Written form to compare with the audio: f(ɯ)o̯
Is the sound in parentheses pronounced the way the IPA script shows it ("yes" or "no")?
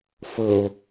no